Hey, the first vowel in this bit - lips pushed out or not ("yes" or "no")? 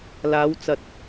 no